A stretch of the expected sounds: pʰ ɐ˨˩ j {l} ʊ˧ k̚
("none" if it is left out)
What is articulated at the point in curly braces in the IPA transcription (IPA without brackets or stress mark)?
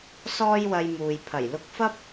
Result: l